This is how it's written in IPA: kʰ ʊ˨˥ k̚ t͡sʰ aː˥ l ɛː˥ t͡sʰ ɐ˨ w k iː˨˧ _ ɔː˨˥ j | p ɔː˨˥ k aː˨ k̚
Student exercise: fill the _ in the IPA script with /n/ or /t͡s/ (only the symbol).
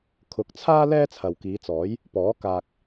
t͡s